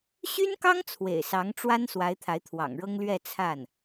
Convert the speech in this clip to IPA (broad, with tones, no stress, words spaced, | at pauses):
ɕy˥nkɑ˥ŋ t͡sʰwḛ˨˩ɪ̯sɑ˧˥ŋʈ͡ʂwa˥n swa˧˥ɪ̯t̪ʰa˧˥ɪ̯t̪ʰwɑ̰˨˩ŋɻɤ˥ŋ lɥɛ˥˧t͡sʰa˥˩n